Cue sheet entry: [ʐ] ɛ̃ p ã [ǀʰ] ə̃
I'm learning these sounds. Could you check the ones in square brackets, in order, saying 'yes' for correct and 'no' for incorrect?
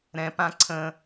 no, yes

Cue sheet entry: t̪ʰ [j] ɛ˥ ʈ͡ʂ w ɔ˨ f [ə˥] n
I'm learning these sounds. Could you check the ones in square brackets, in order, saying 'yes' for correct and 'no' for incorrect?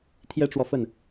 yes, no

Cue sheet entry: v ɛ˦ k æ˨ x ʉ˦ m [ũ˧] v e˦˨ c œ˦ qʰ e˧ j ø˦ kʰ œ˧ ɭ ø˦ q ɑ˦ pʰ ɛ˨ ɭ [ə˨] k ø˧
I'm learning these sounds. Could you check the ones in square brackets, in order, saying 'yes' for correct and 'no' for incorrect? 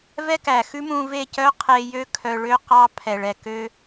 yes, no

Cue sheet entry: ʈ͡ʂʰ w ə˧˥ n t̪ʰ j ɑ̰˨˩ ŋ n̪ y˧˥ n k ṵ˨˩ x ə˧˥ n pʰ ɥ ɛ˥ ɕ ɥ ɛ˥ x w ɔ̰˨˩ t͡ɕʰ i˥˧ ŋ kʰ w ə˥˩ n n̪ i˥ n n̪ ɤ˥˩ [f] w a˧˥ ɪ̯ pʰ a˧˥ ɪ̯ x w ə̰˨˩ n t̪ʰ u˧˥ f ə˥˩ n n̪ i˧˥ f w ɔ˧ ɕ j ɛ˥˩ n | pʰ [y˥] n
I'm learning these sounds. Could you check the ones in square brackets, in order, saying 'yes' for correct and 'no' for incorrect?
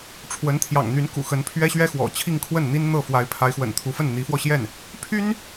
yes, yes

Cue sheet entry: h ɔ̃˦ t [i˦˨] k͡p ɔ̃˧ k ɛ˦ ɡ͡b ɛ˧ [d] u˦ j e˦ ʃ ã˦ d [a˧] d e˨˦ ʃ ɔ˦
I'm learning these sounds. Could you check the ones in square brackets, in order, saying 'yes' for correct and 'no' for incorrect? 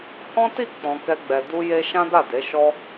yes, yes, no

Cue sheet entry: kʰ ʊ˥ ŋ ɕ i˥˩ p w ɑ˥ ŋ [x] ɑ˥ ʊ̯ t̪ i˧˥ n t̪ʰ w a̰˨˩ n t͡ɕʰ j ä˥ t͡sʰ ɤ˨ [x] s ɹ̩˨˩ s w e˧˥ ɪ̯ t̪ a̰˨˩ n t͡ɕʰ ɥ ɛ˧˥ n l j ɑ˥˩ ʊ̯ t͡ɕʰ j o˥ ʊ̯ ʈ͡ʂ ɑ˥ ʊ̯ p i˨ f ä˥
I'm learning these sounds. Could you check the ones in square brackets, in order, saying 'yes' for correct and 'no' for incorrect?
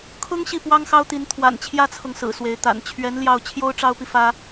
yes, no

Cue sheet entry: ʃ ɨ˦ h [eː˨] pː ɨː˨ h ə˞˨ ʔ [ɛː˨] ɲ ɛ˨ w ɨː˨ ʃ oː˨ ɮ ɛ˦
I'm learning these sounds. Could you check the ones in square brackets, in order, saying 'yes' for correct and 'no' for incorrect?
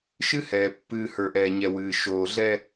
no, yes

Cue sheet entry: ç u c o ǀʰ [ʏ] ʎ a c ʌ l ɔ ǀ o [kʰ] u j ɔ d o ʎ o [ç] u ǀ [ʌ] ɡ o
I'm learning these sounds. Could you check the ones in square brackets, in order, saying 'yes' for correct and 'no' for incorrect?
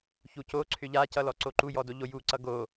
yes, no, no, yes

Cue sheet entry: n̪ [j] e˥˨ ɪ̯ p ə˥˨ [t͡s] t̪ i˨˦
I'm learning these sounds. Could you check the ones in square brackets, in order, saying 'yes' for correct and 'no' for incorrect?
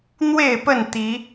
no, no

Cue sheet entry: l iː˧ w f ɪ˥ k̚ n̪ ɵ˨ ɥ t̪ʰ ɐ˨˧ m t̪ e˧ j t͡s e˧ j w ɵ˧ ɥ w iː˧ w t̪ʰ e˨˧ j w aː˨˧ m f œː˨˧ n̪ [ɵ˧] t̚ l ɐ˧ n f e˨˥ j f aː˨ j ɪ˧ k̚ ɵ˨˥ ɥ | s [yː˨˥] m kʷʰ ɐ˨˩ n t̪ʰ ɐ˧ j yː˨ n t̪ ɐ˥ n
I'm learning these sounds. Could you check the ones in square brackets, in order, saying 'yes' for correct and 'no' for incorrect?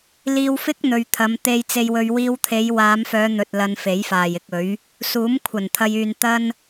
yes, no

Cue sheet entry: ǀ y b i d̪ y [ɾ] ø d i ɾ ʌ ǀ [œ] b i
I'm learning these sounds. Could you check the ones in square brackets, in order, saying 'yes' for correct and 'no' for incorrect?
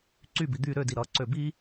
yes, no

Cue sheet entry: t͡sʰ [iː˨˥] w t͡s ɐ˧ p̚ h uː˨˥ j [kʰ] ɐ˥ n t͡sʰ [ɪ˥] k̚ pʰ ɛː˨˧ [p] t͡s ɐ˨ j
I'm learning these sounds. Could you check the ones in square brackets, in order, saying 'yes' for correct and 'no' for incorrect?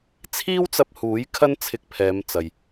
no, yes, no, no

